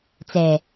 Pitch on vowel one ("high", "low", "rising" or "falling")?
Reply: low